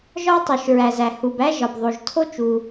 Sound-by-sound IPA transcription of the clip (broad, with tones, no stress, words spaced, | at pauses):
ʒɒ˥tˤu˩ʃ ɹæ˩zæ˩ hu˩b æ˥ ʒɒ˩bðˤo˩ʒtʰo˥ t͡ʃu˩